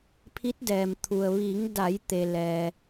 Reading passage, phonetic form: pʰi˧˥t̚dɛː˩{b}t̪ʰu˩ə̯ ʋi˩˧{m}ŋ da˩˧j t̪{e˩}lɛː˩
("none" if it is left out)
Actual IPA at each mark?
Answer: m, none, e˩

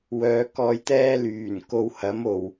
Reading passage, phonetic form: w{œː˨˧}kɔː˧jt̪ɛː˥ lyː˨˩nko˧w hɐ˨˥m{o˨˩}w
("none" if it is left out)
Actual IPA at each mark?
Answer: œː˨˧, o˨˩

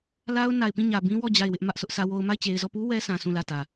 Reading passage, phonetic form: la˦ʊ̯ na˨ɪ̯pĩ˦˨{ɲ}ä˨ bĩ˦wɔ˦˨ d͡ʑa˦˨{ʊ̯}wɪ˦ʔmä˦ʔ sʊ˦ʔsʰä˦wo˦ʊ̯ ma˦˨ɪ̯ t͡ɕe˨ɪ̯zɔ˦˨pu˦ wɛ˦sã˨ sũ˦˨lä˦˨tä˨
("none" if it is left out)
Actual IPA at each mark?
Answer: ɲ, ɪ̯

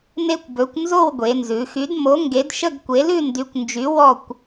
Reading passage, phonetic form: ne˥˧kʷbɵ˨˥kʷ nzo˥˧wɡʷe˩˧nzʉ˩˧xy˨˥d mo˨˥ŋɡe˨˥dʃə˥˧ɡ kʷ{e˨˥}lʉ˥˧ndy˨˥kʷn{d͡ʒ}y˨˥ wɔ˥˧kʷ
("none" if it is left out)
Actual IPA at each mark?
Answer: e˨˥, d͡ʒ

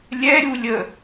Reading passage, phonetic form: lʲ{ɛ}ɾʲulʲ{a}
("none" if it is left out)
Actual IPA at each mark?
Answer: ɛ, ə

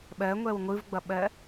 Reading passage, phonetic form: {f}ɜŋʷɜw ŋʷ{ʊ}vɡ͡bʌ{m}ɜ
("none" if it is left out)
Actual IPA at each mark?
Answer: ɓ, ɯ, ɓ

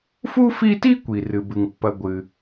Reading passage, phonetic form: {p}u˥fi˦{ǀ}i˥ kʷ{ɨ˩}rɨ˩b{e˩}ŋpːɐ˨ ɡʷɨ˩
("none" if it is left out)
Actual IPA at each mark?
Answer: f, t, i˩, ɨ˩

